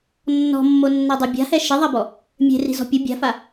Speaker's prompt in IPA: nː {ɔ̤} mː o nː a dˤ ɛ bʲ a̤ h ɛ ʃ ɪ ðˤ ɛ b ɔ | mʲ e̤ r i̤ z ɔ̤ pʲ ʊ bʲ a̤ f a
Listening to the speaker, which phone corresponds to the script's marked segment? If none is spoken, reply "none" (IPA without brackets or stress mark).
ɔ̤